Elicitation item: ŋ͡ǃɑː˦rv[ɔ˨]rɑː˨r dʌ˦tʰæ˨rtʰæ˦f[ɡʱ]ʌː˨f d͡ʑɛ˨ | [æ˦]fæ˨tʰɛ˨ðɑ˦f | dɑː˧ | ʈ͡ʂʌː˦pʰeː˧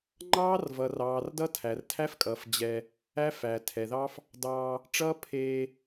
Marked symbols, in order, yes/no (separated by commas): no, no, yes